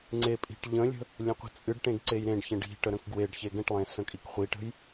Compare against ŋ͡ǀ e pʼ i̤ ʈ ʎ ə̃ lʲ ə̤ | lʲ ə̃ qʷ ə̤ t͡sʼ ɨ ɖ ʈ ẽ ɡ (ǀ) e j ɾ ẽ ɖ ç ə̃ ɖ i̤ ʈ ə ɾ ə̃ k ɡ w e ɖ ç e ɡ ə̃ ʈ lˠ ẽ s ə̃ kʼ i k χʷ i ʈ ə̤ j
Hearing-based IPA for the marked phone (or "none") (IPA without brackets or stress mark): ǀ